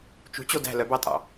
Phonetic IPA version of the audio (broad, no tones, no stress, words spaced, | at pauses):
t͡ʃṳt͡ɕo dæ̤ lœbɑtʼɑ̰